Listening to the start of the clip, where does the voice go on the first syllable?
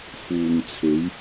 low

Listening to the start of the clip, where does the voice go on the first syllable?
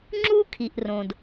high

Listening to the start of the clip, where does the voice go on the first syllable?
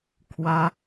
high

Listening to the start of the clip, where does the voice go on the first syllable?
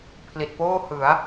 low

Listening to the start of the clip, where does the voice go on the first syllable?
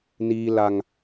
high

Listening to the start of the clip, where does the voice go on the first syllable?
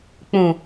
low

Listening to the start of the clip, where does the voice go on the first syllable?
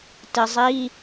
low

